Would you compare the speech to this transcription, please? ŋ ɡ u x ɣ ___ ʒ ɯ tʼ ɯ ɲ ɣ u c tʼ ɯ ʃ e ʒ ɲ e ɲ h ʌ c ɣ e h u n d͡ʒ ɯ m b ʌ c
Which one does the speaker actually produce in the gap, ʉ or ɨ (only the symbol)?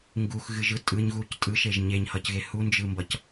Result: ɨ